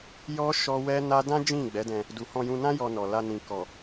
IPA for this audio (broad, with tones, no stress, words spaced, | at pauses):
jɔ˦ ʃɔ˦ wɛ˦na˦ dã˦ d͡ʒĩ˦˨ɡ͡bɛ˨˦dɛ̃˧ | du˨hɔ̃˧jũ˧nã˦ jɔ˧nɔ˨la˧nĩ˨ kɔ˨